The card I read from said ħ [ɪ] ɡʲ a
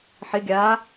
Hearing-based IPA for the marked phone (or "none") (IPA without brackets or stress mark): ɪ